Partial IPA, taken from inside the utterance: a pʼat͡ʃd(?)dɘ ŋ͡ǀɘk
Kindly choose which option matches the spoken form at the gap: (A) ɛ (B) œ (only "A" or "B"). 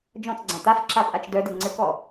B